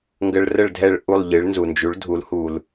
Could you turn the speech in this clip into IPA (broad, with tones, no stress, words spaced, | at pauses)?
ŋɡə˧ɭrə˥˩ɭdʱɛ˥˩ɭ ʔu˥˩lˠʎɨ˩˥ɭnzu˩ nd͡ʒu˩˥ɭdʱu˩˥l hu˩l